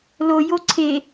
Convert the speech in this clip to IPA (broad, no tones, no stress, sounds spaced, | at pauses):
l o j o ǀʰ e